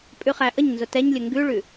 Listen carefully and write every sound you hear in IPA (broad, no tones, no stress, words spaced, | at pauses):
pʼʉχæʔəɲnzʊ tɛɲlʲə ŋɡʉɭʉ